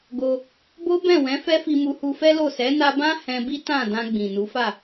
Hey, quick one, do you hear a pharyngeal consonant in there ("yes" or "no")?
no